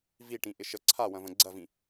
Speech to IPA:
viʈĩ ʔɪʃə ǀʰawɐ̃və̃ ɡ͡ǀɐvĩ

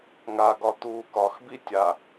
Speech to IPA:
ŋaɡɒ t̪uːkɒxbi tʲa

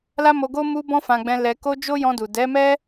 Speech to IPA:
la˦mo˧ɡo˦ mu˧bɔ̃˧ fã˧ɡ͡bɛ̃˧ lɛ˧ ko˧ d͡ʒo˦jɔ̃˧du˨ dɛ˨˦mɛ˦

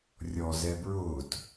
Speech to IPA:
rʲɔ zɛbɹʊːt

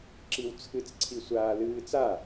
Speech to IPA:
ǁiwt͡sʰɨt͡s ǀʰisʷaːlɨːt͡sa

